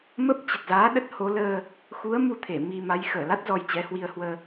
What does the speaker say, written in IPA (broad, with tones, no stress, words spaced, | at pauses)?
mə˦˥p̚ t͡ɕə˨˩t̚zaː˨˦ ɗə˦˥t̚ho˨˦ ləː˧ | xu˨˦ə̯ mu˧t̪ʰe˧˩ mi˧ma˨˦j xəː˧˩la˦˥t̚ zɔ˧jt͡ɕɛ˨˦hwi˧ə̯hwəː˧